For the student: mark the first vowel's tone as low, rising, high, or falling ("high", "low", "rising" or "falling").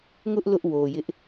high